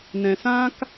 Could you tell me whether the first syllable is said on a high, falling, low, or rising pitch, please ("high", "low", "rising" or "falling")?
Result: low